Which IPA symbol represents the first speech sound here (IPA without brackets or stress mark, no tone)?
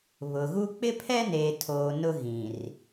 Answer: β